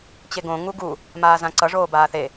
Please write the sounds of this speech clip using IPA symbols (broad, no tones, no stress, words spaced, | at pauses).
t͡ɕeɡõ ŋuɡu | maːzãǀʌ ʐoːbaːθe